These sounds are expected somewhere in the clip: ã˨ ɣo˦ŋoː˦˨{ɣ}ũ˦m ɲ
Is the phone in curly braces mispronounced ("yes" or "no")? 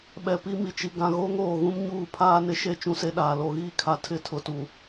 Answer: no